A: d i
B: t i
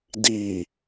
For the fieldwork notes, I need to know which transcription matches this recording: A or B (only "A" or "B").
A